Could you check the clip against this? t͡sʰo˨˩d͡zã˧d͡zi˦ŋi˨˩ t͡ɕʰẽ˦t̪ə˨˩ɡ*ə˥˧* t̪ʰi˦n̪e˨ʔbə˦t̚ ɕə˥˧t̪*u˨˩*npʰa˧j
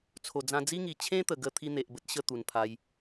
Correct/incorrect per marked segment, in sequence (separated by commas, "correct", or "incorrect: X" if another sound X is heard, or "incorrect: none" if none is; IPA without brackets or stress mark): incorrect: ə˧, correct